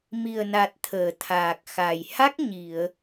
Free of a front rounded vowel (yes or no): yes